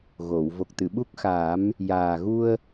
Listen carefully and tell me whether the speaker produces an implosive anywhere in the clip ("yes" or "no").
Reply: yes